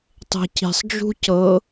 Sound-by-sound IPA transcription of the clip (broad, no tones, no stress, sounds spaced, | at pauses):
tˤ e̤ c i̤ sˤ d͡ʒ ṳ c ɤ